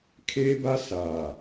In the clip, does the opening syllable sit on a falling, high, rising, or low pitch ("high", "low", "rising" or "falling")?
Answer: high